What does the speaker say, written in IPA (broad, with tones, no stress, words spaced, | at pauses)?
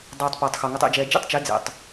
dˤɯ˨tˤ poː˨tˤxo˨ ŋo˨tˤḛ˨d͡ʒɛː˨ d͡ʒḛ˦tˤt͡ʃe˨˦ d͡zḛ˨tˤ